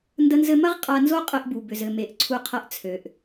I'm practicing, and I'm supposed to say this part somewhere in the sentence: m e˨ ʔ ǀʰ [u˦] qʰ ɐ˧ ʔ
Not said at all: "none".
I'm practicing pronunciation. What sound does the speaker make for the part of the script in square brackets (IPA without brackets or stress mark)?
u˧